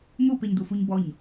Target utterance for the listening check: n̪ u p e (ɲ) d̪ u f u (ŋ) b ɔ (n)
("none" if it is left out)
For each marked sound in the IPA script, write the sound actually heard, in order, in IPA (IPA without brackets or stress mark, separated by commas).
ɲ, ɲ, ɲ